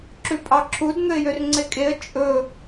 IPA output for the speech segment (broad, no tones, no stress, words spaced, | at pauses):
ǁʉpʼɑǁʰud n̪ɵɪ̯jørŋ͡ǀekʼeə̯ t͡ʃʼɵ